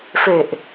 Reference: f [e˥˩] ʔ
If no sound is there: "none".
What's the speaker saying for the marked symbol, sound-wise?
e˨˩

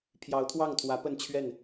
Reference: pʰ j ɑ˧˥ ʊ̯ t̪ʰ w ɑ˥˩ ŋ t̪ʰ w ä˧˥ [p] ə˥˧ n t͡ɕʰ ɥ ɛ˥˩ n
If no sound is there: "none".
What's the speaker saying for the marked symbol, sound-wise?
p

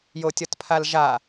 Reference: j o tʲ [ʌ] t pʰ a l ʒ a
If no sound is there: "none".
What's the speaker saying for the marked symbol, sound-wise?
ʌ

